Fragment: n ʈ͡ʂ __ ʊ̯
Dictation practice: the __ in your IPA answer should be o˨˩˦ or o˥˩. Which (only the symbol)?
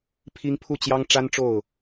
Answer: o˥˩